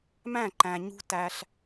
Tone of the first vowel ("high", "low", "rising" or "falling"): falling